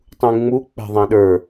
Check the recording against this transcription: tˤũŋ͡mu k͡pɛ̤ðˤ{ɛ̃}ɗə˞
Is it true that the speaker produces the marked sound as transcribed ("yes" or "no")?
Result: yes